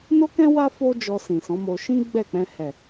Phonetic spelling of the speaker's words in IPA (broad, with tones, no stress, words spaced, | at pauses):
no˦kɛ̃˦wa˦ fo˦d͡ʒɔ˧ sĩ˨sɔ̃˨˦mo˧ ʃĩ˦ ɡ͡bɛ˦˨k͡pɛ̃˧ hɛ˨